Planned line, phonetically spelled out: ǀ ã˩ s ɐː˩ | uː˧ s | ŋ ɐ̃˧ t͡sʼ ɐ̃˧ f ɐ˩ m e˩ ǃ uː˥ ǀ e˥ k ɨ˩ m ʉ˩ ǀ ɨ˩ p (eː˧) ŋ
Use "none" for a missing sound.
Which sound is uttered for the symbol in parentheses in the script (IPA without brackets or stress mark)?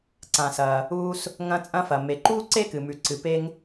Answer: e˧